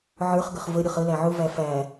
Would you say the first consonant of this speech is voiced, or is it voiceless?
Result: voiced